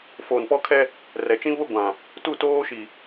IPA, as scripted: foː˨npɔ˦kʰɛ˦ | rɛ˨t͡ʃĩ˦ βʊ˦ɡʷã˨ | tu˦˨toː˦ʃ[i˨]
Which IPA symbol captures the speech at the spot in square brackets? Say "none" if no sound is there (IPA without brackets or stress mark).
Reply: i˨